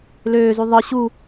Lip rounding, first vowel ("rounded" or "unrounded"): rounded